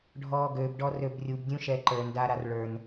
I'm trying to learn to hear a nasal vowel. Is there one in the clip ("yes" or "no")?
yes